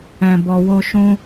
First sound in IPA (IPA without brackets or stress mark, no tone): ɛ̃